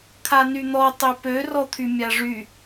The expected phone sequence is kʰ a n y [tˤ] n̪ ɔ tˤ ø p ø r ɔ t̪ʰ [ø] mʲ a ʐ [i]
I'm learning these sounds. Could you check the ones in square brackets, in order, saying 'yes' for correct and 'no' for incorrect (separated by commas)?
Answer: no, no, no